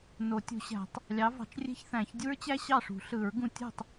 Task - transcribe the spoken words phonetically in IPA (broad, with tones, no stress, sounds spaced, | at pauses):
n o˨˩˦ tʲ ṳ˨˩˦ ɕ æ̤˨˩˦ tˤ | lʲ ɑ˨˥ v ɑ̤˨˩˦ t͡ʃ rʲ e̤˥ ç θ æ̃˨˩˦ ç dʲ u˥ ɹ t͡ɕ æ˥ ɕ ɑ˥˩ ʂ ṳ˨˩˦ ɬ ɯ˨˩˦ ɹ ɡ ũ˧ tʲ o̤˥˩ tˤ